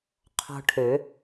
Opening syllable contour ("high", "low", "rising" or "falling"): high